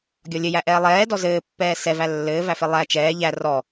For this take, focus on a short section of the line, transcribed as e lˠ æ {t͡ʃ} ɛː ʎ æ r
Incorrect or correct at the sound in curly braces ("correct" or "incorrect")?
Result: correct